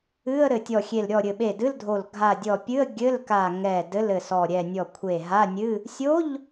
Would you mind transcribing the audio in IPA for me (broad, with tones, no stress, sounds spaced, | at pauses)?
ɨ˧˥˧ ə̯ ɾ ɘ˧˩ tʲ ɔ˧˩ xʲ e˧˩ l ɾʲ ɔ˧˩ ɾʲ ɘ˧˩ ɓ e˧˩ d ɨ˧˥˧ l dʱ o˧˩ l ɡʱ a˧˩ dʲ ɔ˧˩ pʲ ɨ˧˥˧ ə̯ ɡʲ ɘ˧˥˧ l k a˧˩ ŋ ɛ˧˩ d ɘ˧˥˧ l ɘ˧˩ s ɔ˧˩ ɾʲ ɛ˧˩ nʲ ɔ˧˩ kʷʰ e˧˩ ɦ a˧˥˧ nʲ ɨ˧˥˧ | sʲ o˧˥˧ ʎ